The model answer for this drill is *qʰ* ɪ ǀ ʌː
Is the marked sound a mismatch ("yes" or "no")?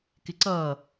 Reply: yes